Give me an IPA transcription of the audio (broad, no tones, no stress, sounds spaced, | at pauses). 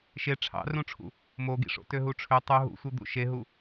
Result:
ʃ e ʈ͡ʂʰ ɑ̰ r ũ ʈ͡ʂʰ ṵ | m o ɡ ḭ ʂ o̰ t ø ɦ u ʈ͡ʂʰ ø tˤ u ɦ ṵ sʷ ɯ d̪ ṵ ʃ e ɦ u